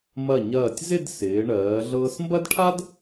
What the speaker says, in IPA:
m ɐ˧˩ ɲ ɐː˧˩ tʲ z ɪ˥˧ d s ɪː˩˧ ɳ ɜː˩˧ ɮ ɤː˧ s m b ɐ˥ d ʈʰ a˥ d

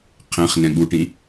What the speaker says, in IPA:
qʰ ɛ̃ χ n ɛ̃ ɠ u ʈ ĩ

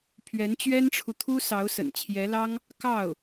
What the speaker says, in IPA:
pʰ ɥ ɛ˧˥ n t͡ɕ ɥ ɛ˥ n ʈ͡ʂʰ u˨ t̪ʰ u˥ s ɑ˧˥ ʊ̯ s ə̰˨˩ n t͡ɕʰ j ɛ˧˥ l ɑ˥ ŋ | k ɑ˥˩ ʊ̯

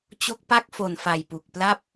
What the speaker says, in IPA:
t͡ɕ o˦˥ k̚ p a˥˩ k̚ f o˨˩ n f a˨˩ j p u˨˩ k̚ p l a˥˩ p̚

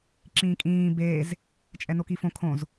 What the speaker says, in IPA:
ǁ ĩː kʼ ĩː b eː z | t͡ʃʼ ɛ n o k i f õ kʰ õ z

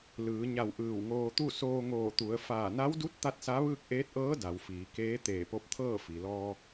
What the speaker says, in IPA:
l ɯː˩˧ ɲ a˧˩ w ʔ ɯː˧˩ w ŋ oː˧ t̪ u˥˨ s oː˧ ŋ oː˧˩ t̪ u˩˧ ə̯ f aː˧˩ n a˧˥ w d u˧˥ t̚ t̪ a˥˨ t̚ s a˧˥ ʋ ɯː˥˨ k̚ ʔ eː˧˥ t̚ ʔ ɤː˧˥ d a˩˧ w f iː˩˧ k eː˧˥ t̪ eː˧˩ p o˧˥ p̚ t̪ʰ ɤː˥˨ f i˩ l ɔː˧

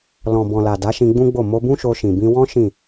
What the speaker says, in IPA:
l ɔ̃˨ b ɔ̃˨ l a˨ d a˨˦ ʃ ĩ˧ ɡ͡b ũ˦ ɡ͡b o˦˨ m o˧ b ũ˦ ʃ o˧ ʃ ĩ˨ b ĩ˧ w ɔ̃˦ ʃ ĩ˦˨

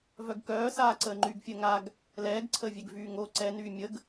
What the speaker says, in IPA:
v œ ɡ k œː s aː ǀ əː ŋ͡ǃ yː ɡ fʲ əː ŋ a ɡ | l ɛː ɡ ǀʰ əː vʲ ɛ ɡ v yː ŋ o ǀ ɛ n yː mʲ ə ɡ

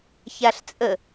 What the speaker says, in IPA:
ç a ɬ t͡sʼ ə

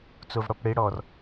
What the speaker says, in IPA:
t͡s o v ɽ ɔ p ɽ e ɽ ɔ r

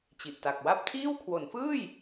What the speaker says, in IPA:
t͡ɕ i˨˩ ʔ t a˨˩ k̚ w a˥˩ p̚ tʰ iː˥˩ w kʰ w o˩˦ n f ɯː˥˩ j

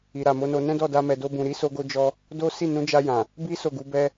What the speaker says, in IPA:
i˨ ɾ a˨ m o˨˦ n o˧ n ɛ̃˦ d ɔ˦˨ d a˧ m ɛ˨ d o˧ b ũ˨ ɾ i˨˦ s o˧ ɡ o˧ d͡ʒ ɔ˧ | d o˦ s i˦˨ n ũ˨˦ d͡ʒ a˧ j ã˨ | b i˦ s o˦˨ ɡ u˨˦ b ɛ˦

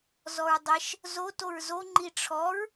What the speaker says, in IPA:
z ɔ ɹ dˤ ɛ ʃ | z o t o ɹ z o ŋ͡ǃ i ʈ͡ʂʰ ɔ ɹ

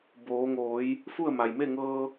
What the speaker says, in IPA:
b oː˩˧ ŋ oː˩˧ j | f u˥˨ ə̯ m a˩ j m e˥˨ ŋ ɤː˧

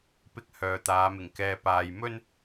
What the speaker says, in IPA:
p ɪ˥ k̚ h œː˨ t̪ aː˨˧ m ɪ˨˩ ŋ k ɛː˧ p aː˧ j m ɵ˥ n

